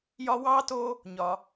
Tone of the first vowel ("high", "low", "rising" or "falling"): high